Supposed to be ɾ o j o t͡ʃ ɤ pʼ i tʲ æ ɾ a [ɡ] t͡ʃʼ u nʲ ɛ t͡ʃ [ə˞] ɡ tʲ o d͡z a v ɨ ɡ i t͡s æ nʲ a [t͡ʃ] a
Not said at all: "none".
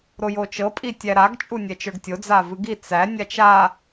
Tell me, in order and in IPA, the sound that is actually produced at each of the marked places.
ɡ, ə˞, t͡ʃ

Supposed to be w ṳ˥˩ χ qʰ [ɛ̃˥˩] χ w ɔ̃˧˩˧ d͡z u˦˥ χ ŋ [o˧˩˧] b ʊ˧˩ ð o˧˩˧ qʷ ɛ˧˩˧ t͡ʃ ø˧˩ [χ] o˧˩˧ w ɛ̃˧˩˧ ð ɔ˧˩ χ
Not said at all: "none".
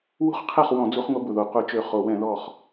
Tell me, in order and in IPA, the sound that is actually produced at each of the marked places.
ɛ˥˩, o˦˥, χ

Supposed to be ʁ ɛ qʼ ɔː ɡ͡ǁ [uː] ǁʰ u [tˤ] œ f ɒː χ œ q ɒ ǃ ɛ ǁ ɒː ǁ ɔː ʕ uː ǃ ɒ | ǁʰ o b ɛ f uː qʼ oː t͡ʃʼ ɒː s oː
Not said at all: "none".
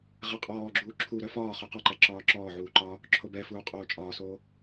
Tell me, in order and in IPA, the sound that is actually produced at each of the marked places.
uː, ɾ

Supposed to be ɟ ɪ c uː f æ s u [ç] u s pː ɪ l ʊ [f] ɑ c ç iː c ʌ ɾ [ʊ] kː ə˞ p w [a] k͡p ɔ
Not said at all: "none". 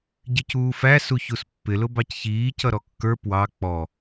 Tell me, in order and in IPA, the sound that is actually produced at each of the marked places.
ç, b, ɔ, ɑ

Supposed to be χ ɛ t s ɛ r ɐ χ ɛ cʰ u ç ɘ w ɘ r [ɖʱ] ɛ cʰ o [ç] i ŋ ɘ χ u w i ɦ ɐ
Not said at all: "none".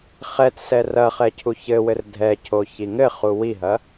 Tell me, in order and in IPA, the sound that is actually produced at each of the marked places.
dʱ, ç

